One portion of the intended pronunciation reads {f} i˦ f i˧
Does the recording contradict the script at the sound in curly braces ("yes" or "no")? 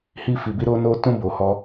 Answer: yes